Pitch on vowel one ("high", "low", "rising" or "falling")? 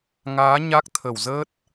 rising